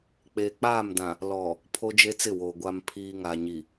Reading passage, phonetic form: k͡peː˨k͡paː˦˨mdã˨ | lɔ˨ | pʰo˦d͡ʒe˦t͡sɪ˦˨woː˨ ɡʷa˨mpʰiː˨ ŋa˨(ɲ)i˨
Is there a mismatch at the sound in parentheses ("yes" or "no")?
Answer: no